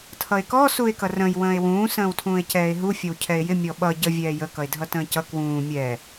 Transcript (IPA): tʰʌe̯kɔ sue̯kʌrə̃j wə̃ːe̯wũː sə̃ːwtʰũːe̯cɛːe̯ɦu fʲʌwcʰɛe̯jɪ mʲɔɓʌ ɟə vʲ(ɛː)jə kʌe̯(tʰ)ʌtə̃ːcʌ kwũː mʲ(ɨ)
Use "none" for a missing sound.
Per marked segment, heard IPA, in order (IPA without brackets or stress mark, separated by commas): ɛː, dʱ, ɛ